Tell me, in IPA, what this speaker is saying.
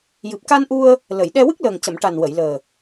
jɨ˨˩p̚ka˧nʔu˧ə̯ | lə˨˩˨jɗɛ˧ wɨ˦˥k̚ləː˨˩ŋcə˨˩˨m ʈa˨˩nwə˨˩˨jləː˨˩

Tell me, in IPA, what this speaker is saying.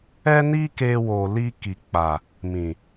ɛ˦ni˦ke˧ wo˨li˧ ki˨k͡pa˨ | mĩ˨

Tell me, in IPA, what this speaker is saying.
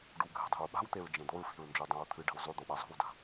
ɖuɡʱe̤dˤe̤ɹ ɓa̤wt̪eɹd͡ʒẽ d̪oɹfi̤ɹnd͡ʒudˤõɹ t̪ʰɨɖi̤w zˤʉd̪oɓa zˤo̤wda̤

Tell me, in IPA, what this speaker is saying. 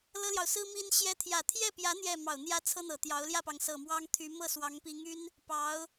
lɤ˥ljɑ˨ʊ̯sɹ̩˥ mi˥nɕjɛ˥ t̪ʰjä˨˩t̪ʰjɛ˥˩pjä˧˥ n̪jɛ˥˩ mɑ˨˩ʊ̯n̪jä˥t͡sʰɤ˥ n̪ɤ˨˩t̪jɑ˧˥ʊ̯ ljä˥˩pɑ˩ŋsɤ˨˩ mwɑ˥ŋt̪ʰy˧˥ mɤ˥˩swɑ˧˥ŋpi˧˥ŋy˥n | pɑ˧˥ʊ̯

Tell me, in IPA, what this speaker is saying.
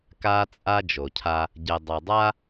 ka˦t͡sʼa˦ d͡ʒo˨cʰa˦ | ɟɛ˨dˤa˨dˤa˦

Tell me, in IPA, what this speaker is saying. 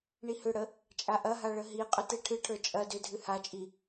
ɳihʏɽə | t͡ʃʼaʔɐɦa ɭəɦiqʼʏ teʈʰɨʈʰə˞ t͡ʃʼɐ dʏdʱɨ hat͡ʃʼi

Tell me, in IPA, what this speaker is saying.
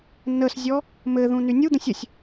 nəszʲɔ | mɘðũ nynʲud̪ə̃sʲ əsʲ

